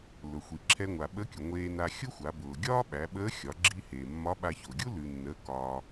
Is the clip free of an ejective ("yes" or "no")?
yes